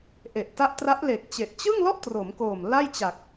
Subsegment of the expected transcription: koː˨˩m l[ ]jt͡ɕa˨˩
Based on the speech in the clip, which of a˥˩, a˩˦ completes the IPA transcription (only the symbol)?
a˥˩